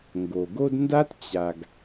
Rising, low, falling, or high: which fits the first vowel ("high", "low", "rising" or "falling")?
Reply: low